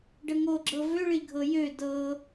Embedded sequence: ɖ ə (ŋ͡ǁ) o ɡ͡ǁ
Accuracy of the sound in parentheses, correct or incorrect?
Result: incorrect